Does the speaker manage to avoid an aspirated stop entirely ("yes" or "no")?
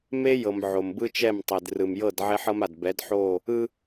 yes